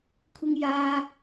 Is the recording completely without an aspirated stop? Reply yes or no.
no